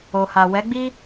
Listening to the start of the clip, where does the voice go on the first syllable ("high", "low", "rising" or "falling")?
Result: low